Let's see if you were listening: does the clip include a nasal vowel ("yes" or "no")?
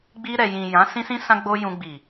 yes